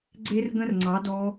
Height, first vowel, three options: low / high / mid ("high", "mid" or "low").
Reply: mid